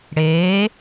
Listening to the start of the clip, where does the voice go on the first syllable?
rising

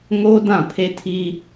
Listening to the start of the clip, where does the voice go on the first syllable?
high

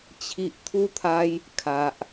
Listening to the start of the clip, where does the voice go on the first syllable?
low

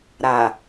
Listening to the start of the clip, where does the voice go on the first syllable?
low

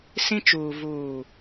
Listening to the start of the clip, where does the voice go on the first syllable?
high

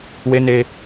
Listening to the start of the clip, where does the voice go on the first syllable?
high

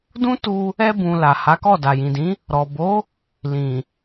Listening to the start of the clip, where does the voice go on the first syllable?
high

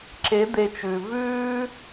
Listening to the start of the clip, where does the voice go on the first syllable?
rising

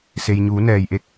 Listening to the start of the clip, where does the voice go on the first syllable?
low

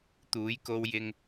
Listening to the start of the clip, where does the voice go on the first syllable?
rising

